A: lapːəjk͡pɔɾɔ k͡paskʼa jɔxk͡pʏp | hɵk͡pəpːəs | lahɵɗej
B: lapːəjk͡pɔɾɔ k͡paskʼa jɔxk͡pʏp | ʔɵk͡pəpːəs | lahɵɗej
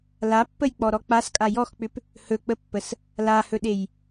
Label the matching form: A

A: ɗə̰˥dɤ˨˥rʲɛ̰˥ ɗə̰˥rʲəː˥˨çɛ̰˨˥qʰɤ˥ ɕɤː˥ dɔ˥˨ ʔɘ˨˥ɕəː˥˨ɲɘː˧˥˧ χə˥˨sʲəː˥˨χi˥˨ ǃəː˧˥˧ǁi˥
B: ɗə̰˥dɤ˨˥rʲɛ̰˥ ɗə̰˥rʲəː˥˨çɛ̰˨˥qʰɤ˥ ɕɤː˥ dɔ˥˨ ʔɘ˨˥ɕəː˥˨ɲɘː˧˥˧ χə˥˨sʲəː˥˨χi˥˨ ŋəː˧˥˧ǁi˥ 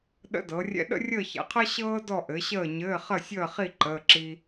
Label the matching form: A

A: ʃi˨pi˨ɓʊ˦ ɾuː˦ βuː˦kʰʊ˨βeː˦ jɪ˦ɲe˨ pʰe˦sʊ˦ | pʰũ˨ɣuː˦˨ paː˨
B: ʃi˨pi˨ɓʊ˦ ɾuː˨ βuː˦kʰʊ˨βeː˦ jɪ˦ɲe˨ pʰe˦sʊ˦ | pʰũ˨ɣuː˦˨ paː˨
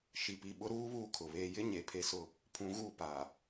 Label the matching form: A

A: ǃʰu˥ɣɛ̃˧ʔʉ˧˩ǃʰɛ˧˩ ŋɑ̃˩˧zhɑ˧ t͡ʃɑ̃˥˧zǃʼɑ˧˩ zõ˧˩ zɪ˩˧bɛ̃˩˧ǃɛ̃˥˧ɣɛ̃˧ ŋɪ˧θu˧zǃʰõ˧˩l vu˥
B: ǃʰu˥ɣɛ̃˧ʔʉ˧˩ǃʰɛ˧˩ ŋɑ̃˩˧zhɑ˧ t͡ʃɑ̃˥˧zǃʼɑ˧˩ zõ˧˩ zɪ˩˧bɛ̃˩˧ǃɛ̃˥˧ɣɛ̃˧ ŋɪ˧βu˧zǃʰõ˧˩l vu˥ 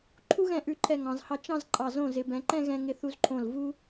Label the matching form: A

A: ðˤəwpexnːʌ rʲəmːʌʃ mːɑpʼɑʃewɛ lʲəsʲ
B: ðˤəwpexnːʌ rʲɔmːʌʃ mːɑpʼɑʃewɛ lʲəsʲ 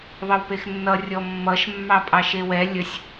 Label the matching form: B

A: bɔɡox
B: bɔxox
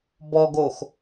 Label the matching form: A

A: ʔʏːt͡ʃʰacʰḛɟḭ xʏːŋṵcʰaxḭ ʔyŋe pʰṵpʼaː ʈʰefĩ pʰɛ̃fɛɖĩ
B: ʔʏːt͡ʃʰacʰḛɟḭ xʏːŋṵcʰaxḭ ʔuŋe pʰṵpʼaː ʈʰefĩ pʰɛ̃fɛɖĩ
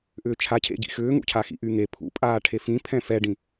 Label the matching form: A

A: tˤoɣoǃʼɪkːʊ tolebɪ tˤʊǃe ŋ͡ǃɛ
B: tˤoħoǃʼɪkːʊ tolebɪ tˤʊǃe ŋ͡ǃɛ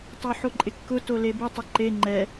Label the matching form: B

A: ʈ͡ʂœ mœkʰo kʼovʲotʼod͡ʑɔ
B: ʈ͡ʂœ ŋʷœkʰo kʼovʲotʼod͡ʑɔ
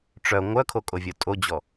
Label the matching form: B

